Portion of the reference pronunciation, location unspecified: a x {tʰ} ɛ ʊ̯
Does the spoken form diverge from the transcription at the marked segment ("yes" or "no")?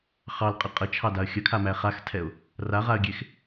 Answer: no